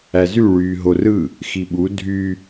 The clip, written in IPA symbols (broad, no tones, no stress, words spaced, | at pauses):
æzy ɭyːɦorɯ | xiɓu dʱy